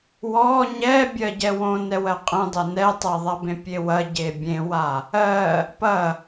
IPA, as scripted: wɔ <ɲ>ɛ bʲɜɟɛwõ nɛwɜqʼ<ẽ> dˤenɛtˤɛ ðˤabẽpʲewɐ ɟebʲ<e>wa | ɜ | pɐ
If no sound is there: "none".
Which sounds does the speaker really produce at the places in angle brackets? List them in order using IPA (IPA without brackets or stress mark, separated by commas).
ɲ, ẽ, ẽ